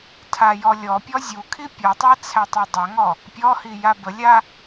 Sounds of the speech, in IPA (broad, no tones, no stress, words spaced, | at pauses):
tʰajɔlʲɔpʲɔ zʲukʰi pʲɔtˤæ t͡sʰætˤadˤaŋɔ | pʲɔhi jabəlʲa